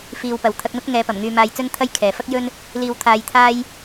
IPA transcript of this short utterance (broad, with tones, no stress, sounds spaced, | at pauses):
f iː˨ w p ɐ˨ w t̪ʰ ɐ˧ k̚ n̪ ʊ˥ k̚ ŋ ɛː˨˧ p ɐ˨˩ m ŋ yː˧ m aː˧ j t͡s ɵ˥ n t̪ʰ ɐ˥ j kʰ ɛː˨ f ɐ˥ k̚ j ɵ˥ n | l iː˧ w t̪ʰ aː˧ j t̪ʰ aː˥ j